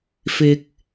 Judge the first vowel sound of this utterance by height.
high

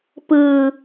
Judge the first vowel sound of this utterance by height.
high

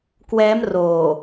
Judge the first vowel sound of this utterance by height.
mid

